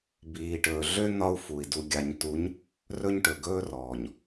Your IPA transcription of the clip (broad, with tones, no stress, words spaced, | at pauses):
biː˨ʈɵː˨ɮø˦ n̪ɒ˦u̯fu˨i̯ du˨ɡʲa˨ɲtu˨˦ɲ | rɵ˦ɲ ʈɵ˨ɡɵː˦rɔː˨ɲ